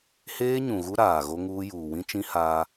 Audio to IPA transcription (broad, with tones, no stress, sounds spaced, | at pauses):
h eː˦ ɲ ũ˨ ɣ u˦ ɾ aː˨ ɣ o˦ ŋ uː˦ j uː˨ w ĩ˦ t͡ʃ ĩ˦ h a˦